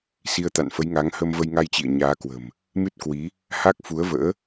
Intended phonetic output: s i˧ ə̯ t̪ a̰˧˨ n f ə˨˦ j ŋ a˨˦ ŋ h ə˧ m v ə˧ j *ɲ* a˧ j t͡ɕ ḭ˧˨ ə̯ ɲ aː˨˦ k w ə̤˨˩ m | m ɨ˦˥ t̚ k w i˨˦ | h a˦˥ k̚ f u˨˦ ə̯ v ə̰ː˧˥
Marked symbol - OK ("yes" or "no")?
no